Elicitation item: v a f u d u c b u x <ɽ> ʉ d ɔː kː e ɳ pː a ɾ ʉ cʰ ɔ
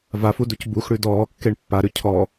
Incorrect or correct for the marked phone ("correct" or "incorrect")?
correct